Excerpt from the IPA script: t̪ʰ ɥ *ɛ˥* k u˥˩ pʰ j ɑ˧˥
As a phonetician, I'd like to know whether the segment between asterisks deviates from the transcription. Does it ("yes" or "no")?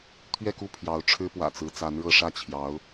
yes